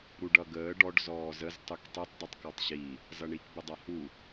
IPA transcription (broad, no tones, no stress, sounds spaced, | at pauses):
ɾ u ɖ ʌ ɡ əː ɖ ɔ ɖ z ɔː z ə z tˤ u k tˤ i tˤ dˤ i tˤ k ɔ tˤ ɕ i | z ʌ ɳ i k b ə dˤ a h u